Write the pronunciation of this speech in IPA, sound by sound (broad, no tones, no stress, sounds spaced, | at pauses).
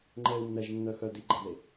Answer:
ŋ͡ǃ ɛ u̯ nː ɛ ʒ nː œ x œ d i ɡ͡ǃ ɐ ð e